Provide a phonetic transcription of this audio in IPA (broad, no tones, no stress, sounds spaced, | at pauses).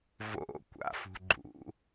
v o̰ kʷ a̰ f ṳ ɡ͡ǃ ṵ